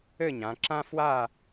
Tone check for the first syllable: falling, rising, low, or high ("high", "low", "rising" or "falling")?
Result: falling